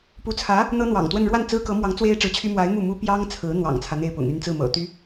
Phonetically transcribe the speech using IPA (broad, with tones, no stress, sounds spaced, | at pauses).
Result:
p u˧˥ t͡sʰ ä˧˥ | n̪ ɤ˥ n̪ w ɑ̰˨˩ ŋ t̪ w ə˥˧ n ɻ w a˥˩ n t͡s ɹ̩˥ k ɤ˧˥ m w ɑ˧˥ ŋ t͡s w e˥ ɪ̯ ʈ͡ʂ ɻ̩˧˥ t͡ɕʰ y˥ m w a˧˥ ɪ̯ m u˥˩ m u˥ p j ɑ˥ ŋ t͡sʰ ɹ̩˧˥ n̪ w ɑ̰˨˩ ŋ t͡sʰ ä˦ n̪ e˥˩ ɪ̯ p ʊ̰˨˩ ŋ y˥˧ n t͡s ɹ̩˥˩ m ɤ̰˨˩ t̪ y˥